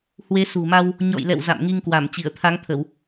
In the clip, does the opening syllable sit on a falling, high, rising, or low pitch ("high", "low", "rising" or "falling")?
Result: rising